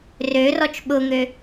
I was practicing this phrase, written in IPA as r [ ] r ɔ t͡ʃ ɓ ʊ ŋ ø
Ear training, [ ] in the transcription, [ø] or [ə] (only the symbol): ø